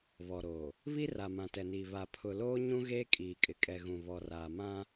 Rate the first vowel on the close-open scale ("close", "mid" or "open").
mid